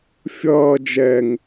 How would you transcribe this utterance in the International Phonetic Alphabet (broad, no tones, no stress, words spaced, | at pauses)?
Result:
fʲʌː d͡ʒɛŋ